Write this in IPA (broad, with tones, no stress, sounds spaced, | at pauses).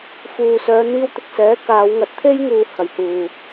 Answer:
f uː˨ s œː˨˧ n̪ iː˧ w t̪ ɪ˧ k̚ s ɛː˨˥ k aː˨˧ w ŋ ɐ˨ t̚ t̪ʰ e˥ j ŋ uː˧ h ɐ˨˩ j h uː˨˩